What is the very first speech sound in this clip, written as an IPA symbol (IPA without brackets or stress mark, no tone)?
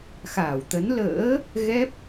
x